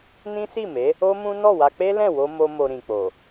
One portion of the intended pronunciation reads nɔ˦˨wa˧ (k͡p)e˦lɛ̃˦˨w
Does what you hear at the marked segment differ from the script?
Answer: no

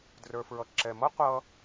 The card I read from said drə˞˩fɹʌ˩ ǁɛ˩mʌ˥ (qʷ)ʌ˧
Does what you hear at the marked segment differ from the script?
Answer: no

